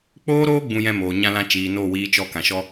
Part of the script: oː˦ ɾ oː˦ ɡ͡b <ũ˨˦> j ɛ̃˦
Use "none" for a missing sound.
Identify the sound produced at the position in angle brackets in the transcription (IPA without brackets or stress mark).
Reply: ũ˦